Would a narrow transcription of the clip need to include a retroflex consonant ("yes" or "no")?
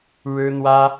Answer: yes